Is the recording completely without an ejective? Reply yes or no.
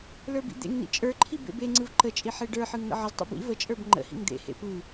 no